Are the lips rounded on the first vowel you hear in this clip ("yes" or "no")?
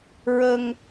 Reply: no